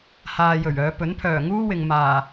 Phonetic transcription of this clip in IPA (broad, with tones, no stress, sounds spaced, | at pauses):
h aː˨ j ɵ˨˩ ɥ œː˨˧ p ɵ˨˥ n pʰ œː˨˩ ŋ uː˥ w ɪ˨ ŋ m aː˨˩